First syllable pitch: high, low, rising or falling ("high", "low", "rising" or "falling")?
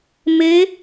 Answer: rising